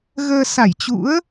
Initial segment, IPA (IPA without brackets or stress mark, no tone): ɣ